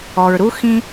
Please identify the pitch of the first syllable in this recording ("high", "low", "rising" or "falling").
low